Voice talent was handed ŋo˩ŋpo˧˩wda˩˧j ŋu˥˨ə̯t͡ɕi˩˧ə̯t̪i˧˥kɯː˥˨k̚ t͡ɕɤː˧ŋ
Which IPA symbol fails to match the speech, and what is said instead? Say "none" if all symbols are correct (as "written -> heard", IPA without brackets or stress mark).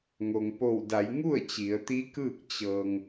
none